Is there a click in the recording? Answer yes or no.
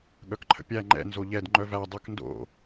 yes